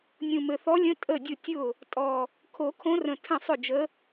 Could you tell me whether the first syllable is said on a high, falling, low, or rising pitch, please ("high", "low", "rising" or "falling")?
low